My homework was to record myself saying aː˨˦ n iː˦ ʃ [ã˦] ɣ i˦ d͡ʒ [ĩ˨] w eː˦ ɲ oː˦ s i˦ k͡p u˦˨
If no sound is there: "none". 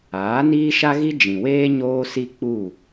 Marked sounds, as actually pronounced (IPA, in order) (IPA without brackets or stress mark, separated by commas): a˦, ĩ˨